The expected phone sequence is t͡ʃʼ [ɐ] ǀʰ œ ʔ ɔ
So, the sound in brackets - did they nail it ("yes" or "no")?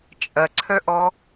yes